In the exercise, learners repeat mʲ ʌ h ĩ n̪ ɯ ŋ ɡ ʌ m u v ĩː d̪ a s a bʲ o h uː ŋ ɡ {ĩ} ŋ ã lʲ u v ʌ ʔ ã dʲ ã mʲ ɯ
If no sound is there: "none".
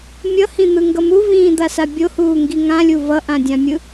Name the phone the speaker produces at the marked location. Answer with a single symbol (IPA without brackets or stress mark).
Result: i